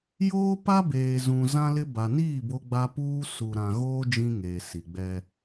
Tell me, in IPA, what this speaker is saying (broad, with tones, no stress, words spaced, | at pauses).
joː˦pa˦ beː˨zũ˨ zã˦lɪ˦ ba˨niː˦˨ bo˦ɡ͡ba˦ puː˦ su˨ɾã˨ɣoː˦ d͡ʒĩ˦ŋeː˨ si˨ɡ͡bɛ˦